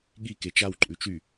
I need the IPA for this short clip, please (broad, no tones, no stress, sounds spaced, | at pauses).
ɠ i k e t͡ʃ a w ǃʼ ʉ t͡ʃ y